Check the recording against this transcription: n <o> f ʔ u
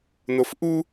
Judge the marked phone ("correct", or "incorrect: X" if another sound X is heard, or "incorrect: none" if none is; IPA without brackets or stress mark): correct